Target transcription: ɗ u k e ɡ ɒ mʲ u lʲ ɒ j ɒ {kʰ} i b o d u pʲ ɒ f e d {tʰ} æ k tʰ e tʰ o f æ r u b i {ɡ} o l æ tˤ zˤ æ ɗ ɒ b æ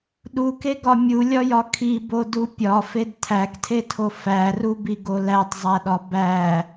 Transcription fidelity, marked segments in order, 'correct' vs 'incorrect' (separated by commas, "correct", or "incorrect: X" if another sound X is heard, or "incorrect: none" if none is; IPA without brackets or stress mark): correct, correct, correct